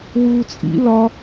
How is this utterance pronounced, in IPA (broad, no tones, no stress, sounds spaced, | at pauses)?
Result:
w uː t͡sʼ ḭ l ɒ